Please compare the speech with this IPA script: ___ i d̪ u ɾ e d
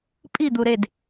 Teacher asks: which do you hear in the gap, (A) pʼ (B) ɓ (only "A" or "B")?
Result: A